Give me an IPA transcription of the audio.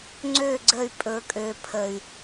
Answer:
ŋ͡ǀ ø˦˨ ɡ͡ǀ ə˦˨ y̯ pʼ ɵ˨˦ kʼ ø˨ pʰ ə˨ y̯

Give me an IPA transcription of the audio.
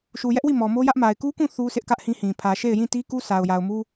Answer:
ʃ u˨ j ɛ˦ ʔ w i˦˨ m ɔ˨ m o˦ j ä˦ ʔ m a˨ ɪ̯ k u˦ k ũ˦˨ θ u˦ sʰ ɪ˦ ʔ k ä˦ ʔ h ĩ˦ h ĩ˨ pʰ ä˨ ʃ e˦˨ ɪ̯ j ĩ˦˨ t i˦ k u˦ sʰ a˨ ʊ̯ j a˨ ʊ̯ m u˦

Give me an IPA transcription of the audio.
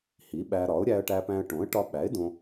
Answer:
h i˩˥ ɓ æ˧ ɾ ɒ˩˥ ʊ̯ ɾʲ æ˧ ə̯ ʈ æ˧ p æ̃˧ ə̯ ʈ õ˩˥ ə̯ ʈ ɒ˧ ɓ æ˩˥ ɪ̯ d õ˧

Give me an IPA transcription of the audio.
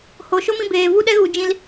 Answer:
h o˨ ʃ o˦ m ĩ˧ b eː˨ v u˦ ɗ ɛ˦ ɣ u˨ d͡ʒ ĩ˦ l

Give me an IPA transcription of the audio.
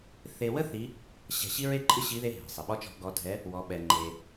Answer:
θ e˧ w ə˥ θ i˧˥ | ɕ ɛ̤˧ ɕ i˥ ɹ e˥ ǃʼ ɨ˥ ɕ i˧˥ ð e˥ ɦ ɛ̤˩ sˤ e˩ ɓ ɔ˥ t͡ʃ ɔ̤˧˥ ɡ ɔ˧˥ dʱ ɛ˧˥ | w ɔ˩˧ ɓ ɛ˩ ŋ͡ǃ e˩

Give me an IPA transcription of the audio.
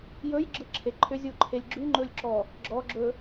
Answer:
j ɵ j ɡ͡ǁ ɯ ǁʰ e ǃʰ ʏ zʲ u ǃʰ e lʲ ɡ͡ǁ y ŋ͡ǃ ɵ lʲ ǁ ɔ | ɡ͡ǁ ɔ ɡ͡ǁ ɵ

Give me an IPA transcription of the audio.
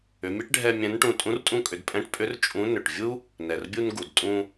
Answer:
ʏ˩˧ mʲ ɨ˧˥ ʈ ɖʱ ɛ˧ mʲ ɛ̃˧˥ n ʈ ũ˧ tʼ ũ˧˥ r tʼ ũ˧ kʼ ʏ˩˧ d pʼ ɛ̃˧˥ ʈ pʼ ʏ˧˥ r t͡ʃʼ ũ˧˥ n ʏ˩ ʈ vʲ u˥ | n ɛ˩ r bʲ u˧ n ɡ u˩ d tʼ ũ˧

